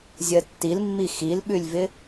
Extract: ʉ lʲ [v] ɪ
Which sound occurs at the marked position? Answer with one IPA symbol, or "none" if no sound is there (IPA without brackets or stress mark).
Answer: v